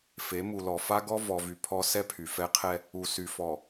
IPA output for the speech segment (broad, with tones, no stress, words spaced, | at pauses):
fe˨˦mu˨lɔ˨ fa˦ɡɔ˦ vɔ˨vy˨pʰɔ˦ sɛ˦pʰy˨fɛ˦qʰɛ˦ | u˨sy˨fɔ˨